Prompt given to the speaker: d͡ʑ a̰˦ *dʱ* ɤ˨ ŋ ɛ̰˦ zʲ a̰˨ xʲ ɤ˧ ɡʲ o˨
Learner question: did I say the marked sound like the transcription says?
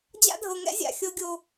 yes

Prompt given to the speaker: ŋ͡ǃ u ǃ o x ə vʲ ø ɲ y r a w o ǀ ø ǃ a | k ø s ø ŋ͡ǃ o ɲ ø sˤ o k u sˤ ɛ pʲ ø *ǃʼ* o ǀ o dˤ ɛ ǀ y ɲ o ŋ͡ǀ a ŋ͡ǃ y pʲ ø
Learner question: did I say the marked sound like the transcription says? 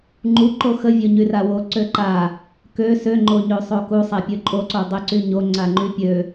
yes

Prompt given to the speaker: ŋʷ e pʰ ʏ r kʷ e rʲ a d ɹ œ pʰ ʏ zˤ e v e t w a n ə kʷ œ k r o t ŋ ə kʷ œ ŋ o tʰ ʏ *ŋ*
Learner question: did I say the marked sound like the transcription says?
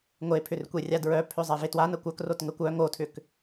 no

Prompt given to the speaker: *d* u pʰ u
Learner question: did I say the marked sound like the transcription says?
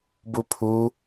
no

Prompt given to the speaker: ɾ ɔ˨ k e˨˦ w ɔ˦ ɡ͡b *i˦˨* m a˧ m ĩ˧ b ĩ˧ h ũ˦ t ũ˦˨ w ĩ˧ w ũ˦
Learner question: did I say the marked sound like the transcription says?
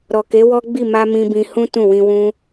yes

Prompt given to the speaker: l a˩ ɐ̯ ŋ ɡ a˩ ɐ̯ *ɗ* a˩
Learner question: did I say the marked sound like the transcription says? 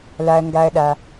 yes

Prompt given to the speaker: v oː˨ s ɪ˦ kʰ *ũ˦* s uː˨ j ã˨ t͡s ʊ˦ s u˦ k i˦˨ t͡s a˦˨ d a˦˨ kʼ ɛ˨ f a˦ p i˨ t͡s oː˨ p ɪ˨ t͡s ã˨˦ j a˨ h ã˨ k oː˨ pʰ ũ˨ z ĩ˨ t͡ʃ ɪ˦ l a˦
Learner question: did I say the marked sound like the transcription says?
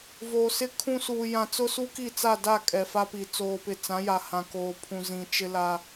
yes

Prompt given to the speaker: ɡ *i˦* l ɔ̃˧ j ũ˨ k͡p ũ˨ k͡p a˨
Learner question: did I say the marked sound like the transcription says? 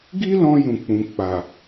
yes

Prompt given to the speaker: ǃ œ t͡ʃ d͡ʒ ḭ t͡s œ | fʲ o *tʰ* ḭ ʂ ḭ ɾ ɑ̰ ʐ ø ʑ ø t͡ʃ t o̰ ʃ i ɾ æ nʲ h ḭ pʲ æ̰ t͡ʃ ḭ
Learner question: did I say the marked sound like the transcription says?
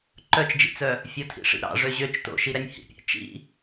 yes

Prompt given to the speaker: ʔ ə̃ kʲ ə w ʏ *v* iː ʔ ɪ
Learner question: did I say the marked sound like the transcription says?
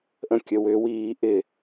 no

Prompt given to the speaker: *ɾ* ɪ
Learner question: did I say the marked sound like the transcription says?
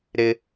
yes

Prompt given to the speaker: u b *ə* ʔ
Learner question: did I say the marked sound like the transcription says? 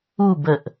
yes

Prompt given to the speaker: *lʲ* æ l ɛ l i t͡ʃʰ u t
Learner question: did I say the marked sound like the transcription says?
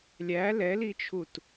yes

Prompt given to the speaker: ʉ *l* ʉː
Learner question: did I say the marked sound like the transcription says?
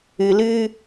yes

